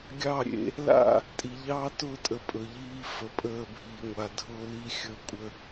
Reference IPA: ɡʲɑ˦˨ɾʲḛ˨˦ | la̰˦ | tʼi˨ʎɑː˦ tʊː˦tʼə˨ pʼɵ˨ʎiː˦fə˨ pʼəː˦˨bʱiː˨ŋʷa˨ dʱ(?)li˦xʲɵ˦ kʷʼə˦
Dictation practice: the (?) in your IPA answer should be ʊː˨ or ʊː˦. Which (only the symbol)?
ʊː˦